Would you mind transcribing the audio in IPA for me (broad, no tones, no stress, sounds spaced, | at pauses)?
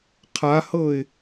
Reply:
qʰ a h ɤ ɪ̯